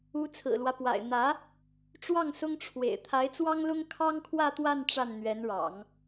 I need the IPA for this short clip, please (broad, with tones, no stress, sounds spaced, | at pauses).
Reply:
u˧˥ t͡sʰ ɹ̩˨˩ l w ä˦ p w a̰˨˩ ɪ̯ n̪ ä˧˥ | ʈ͡ʂ w ɑ˥˩ ŋ s ʊ˥ ŋ ʈ͡ʂʰ w ḛ˨˩ ɪ̯ t̪ʰ a˧˥ ɪ̯ t͡s w ɑ˥ ŋ l ʊ˥ ŋ kʰ ɑ˥ ŋ kʰ w ä˥˧ t̪ w a˥˧ n ʈ͡ʂ a˥˩ n n̪ ɥ ɛ˧˥ n ɻ ɑ̰˨˩˦ ŋ